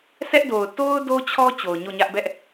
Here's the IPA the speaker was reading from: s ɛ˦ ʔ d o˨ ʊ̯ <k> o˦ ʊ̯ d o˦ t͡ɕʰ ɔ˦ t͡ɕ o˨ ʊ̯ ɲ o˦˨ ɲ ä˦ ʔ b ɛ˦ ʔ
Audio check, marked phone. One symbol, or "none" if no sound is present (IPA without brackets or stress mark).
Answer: t